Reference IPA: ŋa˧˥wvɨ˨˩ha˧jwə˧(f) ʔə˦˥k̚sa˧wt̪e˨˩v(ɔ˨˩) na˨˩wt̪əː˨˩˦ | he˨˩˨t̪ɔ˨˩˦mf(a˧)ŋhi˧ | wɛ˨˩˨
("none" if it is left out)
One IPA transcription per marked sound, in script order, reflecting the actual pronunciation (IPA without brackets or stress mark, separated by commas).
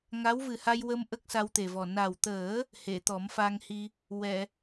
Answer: m, ɔ˨˩, a˧